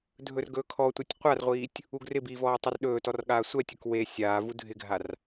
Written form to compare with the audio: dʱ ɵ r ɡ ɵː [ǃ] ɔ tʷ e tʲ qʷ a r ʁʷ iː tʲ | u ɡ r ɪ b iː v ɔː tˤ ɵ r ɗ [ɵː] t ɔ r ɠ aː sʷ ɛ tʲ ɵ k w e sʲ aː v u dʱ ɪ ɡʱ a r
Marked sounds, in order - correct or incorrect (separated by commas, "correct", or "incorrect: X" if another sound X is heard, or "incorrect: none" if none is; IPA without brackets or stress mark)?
incorrect: kʰ, correct